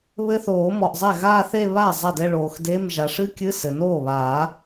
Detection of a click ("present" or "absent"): absent